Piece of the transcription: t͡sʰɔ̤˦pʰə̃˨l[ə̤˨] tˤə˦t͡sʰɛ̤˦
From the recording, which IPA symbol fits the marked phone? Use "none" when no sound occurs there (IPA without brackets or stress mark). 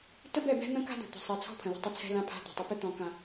ə̤˦˨